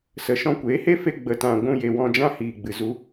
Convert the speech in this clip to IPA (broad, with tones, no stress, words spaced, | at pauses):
sə˨ ʃɔ̃˧kʷeː˨˦he˦fe˧ ɡ͡bə˨tã˨ ɡʷũ˧je˨wɔ̃˧ d͡ʒã˧hiː˨ɡ͡bɨ˨ zu˧